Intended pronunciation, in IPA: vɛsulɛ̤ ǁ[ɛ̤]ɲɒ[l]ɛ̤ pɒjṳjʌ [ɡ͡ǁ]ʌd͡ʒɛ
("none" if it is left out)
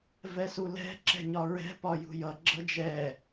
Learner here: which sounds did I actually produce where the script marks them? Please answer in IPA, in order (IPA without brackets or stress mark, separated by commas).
ɛ̤, ɹ, ɡ͡ǁ